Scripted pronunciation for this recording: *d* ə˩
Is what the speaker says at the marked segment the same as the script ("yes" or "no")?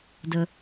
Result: yes